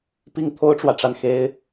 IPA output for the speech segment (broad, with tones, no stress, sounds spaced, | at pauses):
p i˥ ŋ t̪ʰ o˥ ʊ̯ ʈ͡ʂ w ä˨ ʈ͡ʂ a˥˩ n x e˥ ɪ̯